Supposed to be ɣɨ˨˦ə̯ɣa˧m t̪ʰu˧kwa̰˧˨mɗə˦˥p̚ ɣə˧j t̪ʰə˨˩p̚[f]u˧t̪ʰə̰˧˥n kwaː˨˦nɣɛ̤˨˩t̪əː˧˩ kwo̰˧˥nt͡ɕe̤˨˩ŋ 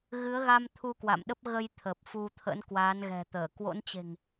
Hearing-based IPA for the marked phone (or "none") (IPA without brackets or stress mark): f